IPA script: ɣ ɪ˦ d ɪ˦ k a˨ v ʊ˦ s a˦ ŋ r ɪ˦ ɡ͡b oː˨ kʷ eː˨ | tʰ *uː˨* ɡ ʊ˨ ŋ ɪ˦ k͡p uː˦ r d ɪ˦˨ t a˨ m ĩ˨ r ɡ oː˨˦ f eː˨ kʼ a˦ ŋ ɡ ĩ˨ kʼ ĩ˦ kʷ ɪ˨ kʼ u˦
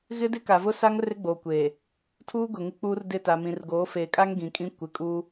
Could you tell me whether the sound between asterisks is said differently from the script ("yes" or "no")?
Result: yes